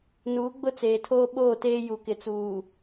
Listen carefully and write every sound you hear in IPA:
n uː˨˦ ɡ͡b ʊ˦ t͡s eː˨ tʰ oː˦ ɓ oː˦˨ t eː˦ j u˨ k ɪ˨ t͡s uː˨

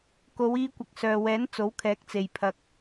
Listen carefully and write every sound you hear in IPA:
k o˨˧ w iː˧ kʷ ɐ˨ k̚ s œː˨ w ɛː˨˥ n t͡s o˨˥ w kʰ ɛː˨˥ k̚ t͡s e˨ j pʰ ɐ˧ k̚

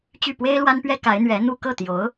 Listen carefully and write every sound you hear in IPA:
t͡ɕ y˥˩ p w e˥ ɪ̯ l w a˥ n p ɥ ɛ˥ k a˧˥ ɪ̯ n̪ ɥ ɛ˧˥ n̪ u˥˧ k ɤ˥˩ t̪ j o˧˥ ʊ̯

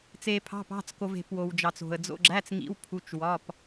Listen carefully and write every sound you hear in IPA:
t͡s e˧ pʰ ɑ̤˧˥˧ p ɑ̤˧˥˧ t͡s k o˧ v e̤˧ p w o˧ w d͡ʒ ɑ˧ t͡s o̤˧ ə̯ d͡z o̰˧˥˧ ɡ͡ǁ æ˧˥˧ t͡s ŋ ḭ˧˥˧ w pʰ u˧˥˧ t͡ʃ w ɒ˧˥˧ p

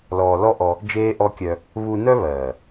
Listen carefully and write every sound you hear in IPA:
l ɔː˨ l ɔ˦ ʔ ɔ˧ | d͡ʒ eː˦ ʔ ɔ˦ kʲ œ˧ | β u˧ n œ˦ β ɜː˨

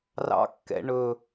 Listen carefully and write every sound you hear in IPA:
r ɑ̰ kː ɛ̰ ɳ ɵ

